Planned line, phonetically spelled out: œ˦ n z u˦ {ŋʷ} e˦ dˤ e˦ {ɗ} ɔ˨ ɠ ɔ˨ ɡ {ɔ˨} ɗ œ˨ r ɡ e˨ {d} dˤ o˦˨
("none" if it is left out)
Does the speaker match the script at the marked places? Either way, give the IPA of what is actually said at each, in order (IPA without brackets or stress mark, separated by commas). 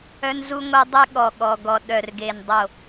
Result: ŋʷ, ɠ, ɔ˨, n